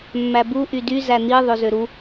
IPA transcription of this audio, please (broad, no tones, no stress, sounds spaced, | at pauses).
mː æ b u ʔ y d y z æ n̪ i ðˤ ø z ø ɾ u